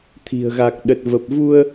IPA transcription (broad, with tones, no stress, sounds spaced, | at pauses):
t̪ʰ i̤˨˩ ə̯ ɣ a˨˩ k̚ ɗ ə˨˩ t̚ v ə˨˩ p̚ v u˧ ə̯